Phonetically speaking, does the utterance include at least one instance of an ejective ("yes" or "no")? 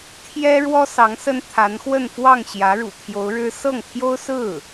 no